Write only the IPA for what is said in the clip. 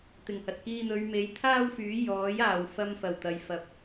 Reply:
t̪ ɪ˨˩ ŋ h ɐ˨ t̚ k iː˧ n̪ ɵ˨˧ ɥ m e˨˥ j t̪ʰ aː˥ w f yː˨˥ j ɔː˨˥ j aː˨ w f ɐ˧ m f ɐ˨˩ w t̪ ɐ˨ j f ɐ˨ p̚

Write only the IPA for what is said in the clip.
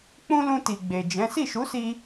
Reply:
k͡p ũ˦ l ũ˧ t i˨ ɡ͡b e˨ d͡ʒ ɛ̃˨˦ s i˦˨ ʃ u˨˦ s i˧

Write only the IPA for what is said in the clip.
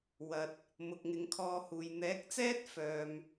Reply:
w ɐ˨ t̚ | m ʊ˨ k̚ ŋ ɪ˨˧ ŋ kʰ ɔː˧ h uː˨ j n̪ ɛː˨˥ k̚ t͡s ɛː˥ t̚ f œː˧ m

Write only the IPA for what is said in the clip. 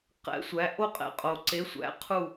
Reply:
q ɛ̰˨˦ sʷ æ˨˦ ʔ o˦˨ qʼ ɛ̰˨˦ qʼ o˨ ǀ e˨˦ sʷ æ̰˨˦ qʰ u˦˨

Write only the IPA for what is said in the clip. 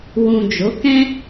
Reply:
w ũ˨ d͡ʒ o˨˦ k ɛ̃˦

